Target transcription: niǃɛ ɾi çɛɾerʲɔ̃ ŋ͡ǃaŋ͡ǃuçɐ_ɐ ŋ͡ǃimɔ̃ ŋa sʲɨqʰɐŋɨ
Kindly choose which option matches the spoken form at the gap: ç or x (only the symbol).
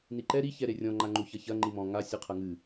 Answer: ç